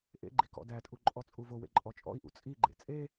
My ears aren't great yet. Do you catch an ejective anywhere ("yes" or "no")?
yes